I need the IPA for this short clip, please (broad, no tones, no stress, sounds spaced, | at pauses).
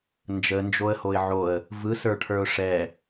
n d͡ʒ ə n d͡ʒ o ə̯ h o ɪ̯ ʕ o ə̯ | v ɯ s ə˞ ʈʰ ə˞ ʊ̯ ʂ ɛ